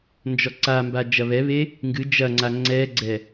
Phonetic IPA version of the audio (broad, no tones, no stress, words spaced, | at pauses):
nd͡ʒɔǀamba d͡ʒɐβɛβe | ŋɡɨ d͡ʒɐŋ͡ǀa ŋ͡ǀɛɡ͡ǀɛ